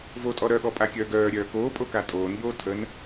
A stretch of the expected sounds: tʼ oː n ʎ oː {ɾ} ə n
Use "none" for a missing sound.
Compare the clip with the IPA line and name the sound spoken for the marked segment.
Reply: tʰ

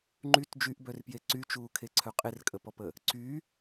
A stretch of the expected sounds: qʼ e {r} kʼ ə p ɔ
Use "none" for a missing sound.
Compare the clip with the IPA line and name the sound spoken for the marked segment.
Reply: r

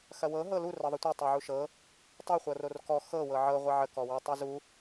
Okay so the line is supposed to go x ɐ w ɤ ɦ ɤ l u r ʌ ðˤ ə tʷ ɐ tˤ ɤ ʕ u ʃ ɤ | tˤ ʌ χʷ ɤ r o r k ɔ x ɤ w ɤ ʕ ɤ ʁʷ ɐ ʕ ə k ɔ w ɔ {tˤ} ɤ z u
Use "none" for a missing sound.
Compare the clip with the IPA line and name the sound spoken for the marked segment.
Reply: tˤ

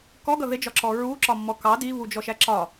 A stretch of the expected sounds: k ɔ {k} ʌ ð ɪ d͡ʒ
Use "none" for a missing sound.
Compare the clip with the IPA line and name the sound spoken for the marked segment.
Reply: ɡ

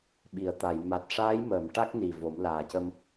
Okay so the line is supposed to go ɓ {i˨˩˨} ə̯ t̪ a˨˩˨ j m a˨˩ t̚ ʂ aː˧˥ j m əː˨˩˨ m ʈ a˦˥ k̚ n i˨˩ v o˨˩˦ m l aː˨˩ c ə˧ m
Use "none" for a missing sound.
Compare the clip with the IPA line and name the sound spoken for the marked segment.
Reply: i˨˩˨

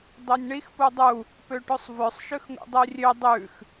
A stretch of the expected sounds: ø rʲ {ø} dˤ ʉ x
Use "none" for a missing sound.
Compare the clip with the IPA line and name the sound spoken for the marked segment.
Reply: ø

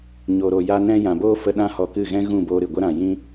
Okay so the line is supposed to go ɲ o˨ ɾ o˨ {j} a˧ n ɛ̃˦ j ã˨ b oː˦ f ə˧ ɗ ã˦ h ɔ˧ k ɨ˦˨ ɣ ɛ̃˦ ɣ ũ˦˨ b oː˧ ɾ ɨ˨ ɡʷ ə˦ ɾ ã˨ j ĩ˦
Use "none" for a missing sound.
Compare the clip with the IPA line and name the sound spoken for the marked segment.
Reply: j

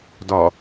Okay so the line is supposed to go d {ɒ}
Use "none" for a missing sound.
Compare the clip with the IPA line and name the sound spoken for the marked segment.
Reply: ɒ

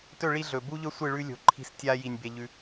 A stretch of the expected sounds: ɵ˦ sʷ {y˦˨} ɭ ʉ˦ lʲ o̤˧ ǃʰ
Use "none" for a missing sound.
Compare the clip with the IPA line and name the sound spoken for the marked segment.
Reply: ɨ˦˨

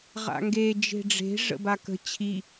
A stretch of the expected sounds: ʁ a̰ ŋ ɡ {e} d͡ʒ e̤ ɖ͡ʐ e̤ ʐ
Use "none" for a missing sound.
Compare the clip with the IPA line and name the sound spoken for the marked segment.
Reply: e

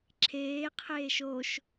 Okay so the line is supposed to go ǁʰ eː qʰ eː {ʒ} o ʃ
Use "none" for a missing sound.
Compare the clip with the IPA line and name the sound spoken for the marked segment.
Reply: ʃ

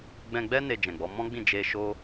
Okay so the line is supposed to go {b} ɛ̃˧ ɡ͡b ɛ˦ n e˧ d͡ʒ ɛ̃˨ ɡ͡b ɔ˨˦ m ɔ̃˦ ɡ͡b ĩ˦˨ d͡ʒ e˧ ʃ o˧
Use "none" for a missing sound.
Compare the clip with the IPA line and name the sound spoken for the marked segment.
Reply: ɡ͡b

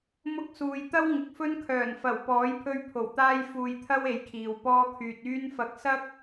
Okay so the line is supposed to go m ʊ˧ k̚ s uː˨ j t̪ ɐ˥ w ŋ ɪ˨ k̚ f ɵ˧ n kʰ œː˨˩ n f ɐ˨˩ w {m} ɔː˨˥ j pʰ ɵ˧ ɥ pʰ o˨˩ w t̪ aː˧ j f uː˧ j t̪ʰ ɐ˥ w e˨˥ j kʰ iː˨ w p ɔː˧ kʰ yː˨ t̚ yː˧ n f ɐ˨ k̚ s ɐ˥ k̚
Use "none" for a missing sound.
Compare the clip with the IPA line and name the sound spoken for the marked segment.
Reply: p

